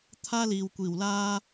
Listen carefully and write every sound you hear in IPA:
t̪ʰ aː˥ l iː˨ w kʷ iː˨˩ w l aː˥

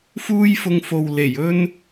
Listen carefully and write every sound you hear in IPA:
f uː˥ j f ʊ˧ ŋ f o˨ w l e˨˩ j ɵ˥ n

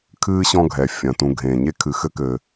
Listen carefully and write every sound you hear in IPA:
kʰ ɨː˥ ɕ ɔ̃˦ ɡʱ ɛ˩ fʲ ɐ̃˩ t ũ˨ ɡʱ ẽː˩ ɲ e˥ kʰ ɨ˨ x ɘ˥ k ɘ˨

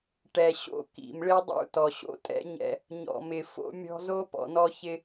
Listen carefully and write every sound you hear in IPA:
ʈ ɛ˨ ɕ o̰˦ k ḭ˨ m ɭ ɪ˦ dˤ ṵ˦ t ɔ˨ ɕ o̰˦ tʼ ɛ̰˦ ɲ ɛ̰˦ | ɲ ɔ̰˨ m ɪ˨ f o̰˦ mʲ ɔ̤˦ z o˦ p ɔ̰˨ n ɔ˦ ç ɪ˦

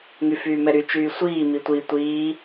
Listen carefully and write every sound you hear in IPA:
ŋ y f yː m ɛ ɾ y t͡ʃ yː sʷ iː m i tʷ i tʷ iː

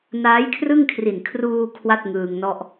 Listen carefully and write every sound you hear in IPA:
n aː˦˥ j kʰ r ɯ˥˩ ŋ kʰ r i˨˩ n kʰ r uː˧ kʰ w a˥˩ t̚ ŋ ɯː˧ ŋ n ɔ˥˩ ʔ

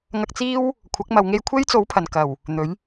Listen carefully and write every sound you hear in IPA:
ŋ ɐ˧ k̚ t͡s iː˥ w | kʷʰ ɐ˨˥ k̚ m ɐ˨ w ŋ e˧ j kʷʰ e˥ j t͡s o˨˥ w pʰ ɐ˨˩ n k ɐ˨˩ w | n̪ ɵ˨˥ ɥ

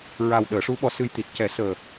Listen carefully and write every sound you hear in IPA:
ɹ a˨˩ w ɗ əː˨˩˦ ʂ u˧˥ ɓ ɔ˧ s ɨ˧ j t̪ i˨˩ t̚ c ɛ˨˩˦ s əː˨˩

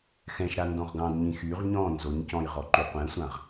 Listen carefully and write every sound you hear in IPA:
x ɛ̃ ʃ ɾ a n d ɔ̃ ʁ ɡ ɑ̃ d ɲ ĩ x y ʁ ɲ ɔ̃ n z o ɲ c ɔ̃ j ʁ ɔ ǃ y qʷ ɛ̃ sʷ ã ʁ

